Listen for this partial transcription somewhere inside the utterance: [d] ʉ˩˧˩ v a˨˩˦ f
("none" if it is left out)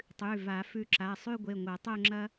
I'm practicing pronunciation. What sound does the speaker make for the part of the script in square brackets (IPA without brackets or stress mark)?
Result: tˤ